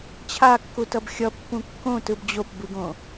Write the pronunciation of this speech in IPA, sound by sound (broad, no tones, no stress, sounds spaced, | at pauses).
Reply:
t͡ɕʰ a kː u t ʌ b xʲ ʌ pː ũ kː õ t ɯ b d͡ʑ o p b ɯ ɡ õ